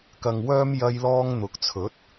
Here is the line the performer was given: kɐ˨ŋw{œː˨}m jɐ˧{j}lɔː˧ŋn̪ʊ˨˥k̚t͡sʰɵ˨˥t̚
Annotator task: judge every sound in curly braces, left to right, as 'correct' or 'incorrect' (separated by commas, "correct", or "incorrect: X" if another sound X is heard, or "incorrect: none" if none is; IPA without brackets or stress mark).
incorrect: œː˧, correct